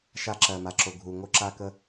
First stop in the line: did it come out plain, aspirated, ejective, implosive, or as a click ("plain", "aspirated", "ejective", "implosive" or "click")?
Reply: click